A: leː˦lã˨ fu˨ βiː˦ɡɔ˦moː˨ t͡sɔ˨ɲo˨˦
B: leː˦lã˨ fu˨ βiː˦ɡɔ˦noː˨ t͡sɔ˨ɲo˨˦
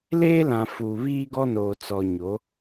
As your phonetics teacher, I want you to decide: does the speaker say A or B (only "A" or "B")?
B